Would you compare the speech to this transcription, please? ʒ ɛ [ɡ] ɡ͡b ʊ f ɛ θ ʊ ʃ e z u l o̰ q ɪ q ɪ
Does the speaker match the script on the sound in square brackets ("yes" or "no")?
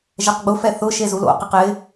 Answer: no